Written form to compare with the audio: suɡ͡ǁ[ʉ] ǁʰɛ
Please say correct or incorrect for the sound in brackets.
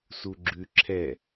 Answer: correct